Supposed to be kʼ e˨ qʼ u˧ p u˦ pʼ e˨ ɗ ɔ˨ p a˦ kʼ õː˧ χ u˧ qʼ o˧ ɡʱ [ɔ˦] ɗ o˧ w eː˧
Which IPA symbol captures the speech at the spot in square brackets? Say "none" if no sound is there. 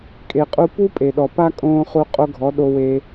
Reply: ɔ˨˦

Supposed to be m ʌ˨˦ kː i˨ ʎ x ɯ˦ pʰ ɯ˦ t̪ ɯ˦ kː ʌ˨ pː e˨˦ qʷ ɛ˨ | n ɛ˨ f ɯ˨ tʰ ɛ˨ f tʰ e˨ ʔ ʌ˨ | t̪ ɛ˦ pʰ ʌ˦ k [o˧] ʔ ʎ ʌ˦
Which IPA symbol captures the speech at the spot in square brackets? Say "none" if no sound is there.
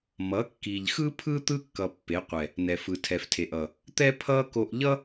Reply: o˧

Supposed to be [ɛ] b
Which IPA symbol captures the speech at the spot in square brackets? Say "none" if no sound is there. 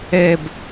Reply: ɛ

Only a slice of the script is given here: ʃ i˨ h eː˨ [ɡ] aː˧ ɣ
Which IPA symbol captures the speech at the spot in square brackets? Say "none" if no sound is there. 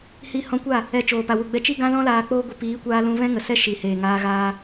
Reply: ŋ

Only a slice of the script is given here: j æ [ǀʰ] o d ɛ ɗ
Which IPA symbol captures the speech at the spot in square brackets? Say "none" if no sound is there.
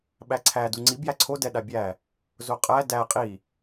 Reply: ǀʰ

